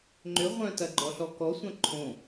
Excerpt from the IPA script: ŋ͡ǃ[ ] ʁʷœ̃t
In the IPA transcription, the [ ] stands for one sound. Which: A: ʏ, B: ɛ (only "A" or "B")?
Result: A